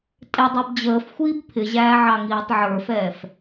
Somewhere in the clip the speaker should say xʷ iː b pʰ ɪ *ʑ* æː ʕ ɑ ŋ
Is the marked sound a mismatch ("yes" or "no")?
no